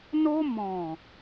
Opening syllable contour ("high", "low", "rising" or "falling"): high